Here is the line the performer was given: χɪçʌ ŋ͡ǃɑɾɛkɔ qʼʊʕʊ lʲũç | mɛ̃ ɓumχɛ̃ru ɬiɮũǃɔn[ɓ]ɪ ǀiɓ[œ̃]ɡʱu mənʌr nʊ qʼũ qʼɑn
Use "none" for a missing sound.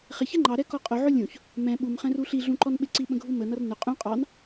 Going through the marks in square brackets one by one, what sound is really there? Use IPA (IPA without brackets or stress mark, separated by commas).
ɓ, ə̃